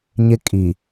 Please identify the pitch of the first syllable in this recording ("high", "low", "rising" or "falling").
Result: high